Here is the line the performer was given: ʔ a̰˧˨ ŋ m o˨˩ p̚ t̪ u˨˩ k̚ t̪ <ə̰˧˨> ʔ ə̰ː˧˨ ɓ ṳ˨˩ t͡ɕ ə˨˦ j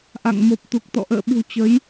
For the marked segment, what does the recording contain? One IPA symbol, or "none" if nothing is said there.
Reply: ɔ̰˧˨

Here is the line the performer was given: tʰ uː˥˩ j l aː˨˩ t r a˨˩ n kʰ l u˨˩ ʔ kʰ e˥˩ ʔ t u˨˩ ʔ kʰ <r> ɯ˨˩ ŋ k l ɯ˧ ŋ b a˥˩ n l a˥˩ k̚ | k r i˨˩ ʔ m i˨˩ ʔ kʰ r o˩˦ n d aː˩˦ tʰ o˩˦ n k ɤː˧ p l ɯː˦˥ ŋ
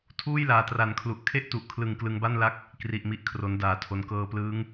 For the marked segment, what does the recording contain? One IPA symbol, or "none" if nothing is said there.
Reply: l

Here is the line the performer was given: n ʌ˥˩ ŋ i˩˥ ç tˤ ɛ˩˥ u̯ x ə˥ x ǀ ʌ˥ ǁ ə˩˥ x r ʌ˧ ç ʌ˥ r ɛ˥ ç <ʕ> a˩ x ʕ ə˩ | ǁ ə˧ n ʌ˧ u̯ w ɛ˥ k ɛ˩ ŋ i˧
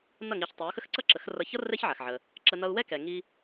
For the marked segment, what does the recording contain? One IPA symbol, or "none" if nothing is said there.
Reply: ʕ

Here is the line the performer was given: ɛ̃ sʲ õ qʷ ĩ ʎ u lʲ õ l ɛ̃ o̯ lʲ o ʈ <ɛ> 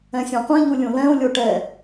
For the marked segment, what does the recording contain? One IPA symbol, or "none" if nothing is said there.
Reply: ɛ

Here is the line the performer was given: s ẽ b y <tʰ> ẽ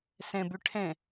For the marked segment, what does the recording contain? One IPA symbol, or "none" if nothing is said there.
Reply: ʈʰ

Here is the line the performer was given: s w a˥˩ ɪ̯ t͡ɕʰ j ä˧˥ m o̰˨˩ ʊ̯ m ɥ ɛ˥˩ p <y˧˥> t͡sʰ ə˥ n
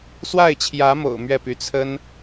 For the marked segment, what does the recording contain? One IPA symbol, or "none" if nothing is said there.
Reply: y˧˥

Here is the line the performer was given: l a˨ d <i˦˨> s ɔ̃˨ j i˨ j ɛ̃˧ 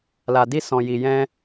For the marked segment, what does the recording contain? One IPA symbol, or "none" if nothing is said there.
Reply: i˧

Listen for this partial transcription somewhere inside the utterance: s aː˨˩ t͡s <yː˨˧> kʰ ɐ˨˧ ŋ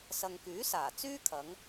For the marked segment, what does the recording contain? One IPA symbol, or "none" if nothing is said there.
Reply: yː˥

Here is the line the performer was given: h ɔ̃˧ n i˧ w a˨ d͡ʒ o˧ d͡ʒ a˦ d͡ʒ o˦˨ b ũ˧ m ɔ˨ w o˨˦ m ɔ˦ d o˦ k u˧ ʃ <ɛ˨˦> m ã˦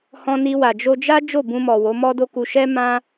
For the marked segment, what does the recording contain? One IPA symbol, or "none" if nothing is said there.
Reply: ɛ˦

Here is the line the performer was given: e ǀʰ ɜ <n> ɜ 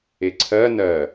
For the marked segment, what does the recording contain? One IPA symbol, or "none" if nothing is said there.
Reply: n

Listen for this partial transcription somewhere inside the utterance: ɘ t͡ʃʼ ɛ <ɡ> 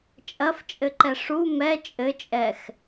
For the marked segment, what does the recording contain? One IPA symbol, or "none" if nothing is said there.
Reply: x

